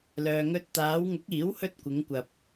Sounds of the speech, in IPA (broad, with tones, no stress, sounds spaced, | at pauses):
l œː˨ ŋ ɵ˧ t̚ t̪ aː˨˧ w ŋ ʊ˨˥ k̚ iː˨˥ w h ɵ˧ t̚ kʷ ɪ˨˧ ŋ kʷ ɐ˨ p̚